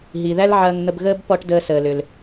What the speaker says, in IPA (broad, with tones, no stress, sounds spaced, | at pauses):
ɦ i˩ ð æ˥ l ʕ ɐː˧ ŋ n̪ ə˧ b ɣ əː˥ b p ɔ˧ ʈ d əː˧ s əː˩ l ʏ˩ l